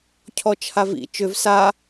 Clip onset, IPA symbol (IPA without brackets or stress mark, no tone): cʰ